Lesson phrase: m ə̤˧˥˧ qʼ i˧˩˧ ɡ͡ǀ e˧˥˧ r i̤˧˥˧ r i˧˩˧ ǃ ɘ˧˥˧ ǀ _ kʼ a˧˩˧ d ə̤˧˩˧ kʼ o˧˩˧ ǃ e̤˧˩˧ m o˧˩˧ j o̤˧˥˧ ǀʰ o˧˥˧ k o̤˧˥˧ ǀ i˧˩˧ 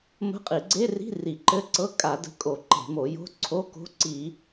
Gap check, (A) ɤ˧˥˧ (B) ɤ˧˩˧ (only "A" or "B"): A